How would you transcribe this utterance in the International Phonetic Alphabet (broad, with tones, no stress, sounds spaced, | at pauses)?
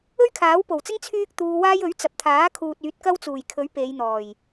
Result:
ɵ˥ ɥ kʰ aː˨˥ w p o˨˩ w t͡s ɪ˥ ŋ t͡sʰ yː˥ k̚ t̪ uː˧ w aː˥ j ɵ˨˥ ɥ t͡s ɐ˨ p̚ t̪ʰ aː˨˥ kʰ uː˨ t̚ yː˨˥ t̚ k ɐ˥ w t͡s uː˨˩ j kʰ ɵ˨˥ ɥ p e˨˧ j n̪ ɔː˨˩ j